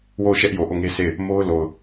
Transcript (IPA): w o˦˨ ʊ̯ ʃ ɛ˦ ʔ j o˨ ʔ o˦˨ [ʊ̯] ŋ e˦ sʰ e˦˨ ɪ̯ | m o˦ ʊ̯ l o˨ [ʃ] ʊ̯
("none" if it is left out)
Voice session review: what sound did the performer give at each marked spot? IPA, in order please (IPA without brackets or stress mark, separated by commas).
none, none